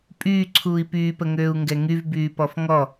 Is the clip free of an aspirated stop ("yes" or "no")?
no